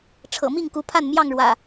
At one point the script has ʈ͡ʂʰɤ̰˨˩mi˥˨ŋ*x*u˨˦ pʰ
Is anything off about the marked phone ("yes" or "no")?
yes